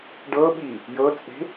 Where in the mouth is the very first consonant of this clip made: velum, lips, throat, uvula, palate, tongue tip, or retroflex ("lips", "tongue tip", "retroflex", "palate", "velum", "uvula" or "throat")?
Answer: retroflex